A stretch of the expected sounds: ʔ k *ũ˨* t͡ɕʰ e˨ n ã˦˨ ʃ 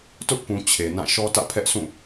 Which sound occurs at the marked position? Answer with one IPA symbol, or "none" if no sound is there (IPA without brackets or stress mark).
ũ˨